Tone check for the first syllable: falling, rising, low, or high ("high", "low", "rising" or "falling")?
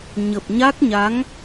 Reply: low